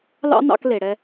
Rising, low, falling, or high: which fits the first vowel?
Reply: high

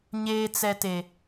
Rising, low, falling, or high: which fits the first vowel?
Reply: low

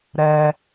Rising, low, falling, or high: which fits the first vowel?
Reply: low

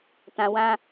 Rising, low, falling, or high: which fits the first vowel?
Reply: low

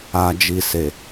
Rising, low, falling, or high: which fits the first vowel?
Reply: low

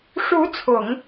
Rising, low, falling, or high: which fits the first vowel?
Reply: rising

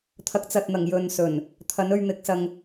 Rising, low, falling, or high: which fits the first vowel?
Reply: rising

